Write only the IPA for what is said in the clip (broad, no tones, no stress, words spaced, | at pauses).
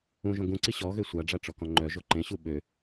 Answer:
ũʒõ ɡũǀi ɕɔɣø sʷaɖ͡ʐaʈ͡ʂɔkɔ̃ ŋ͡ǃœʒo ǃẽɕu ɓø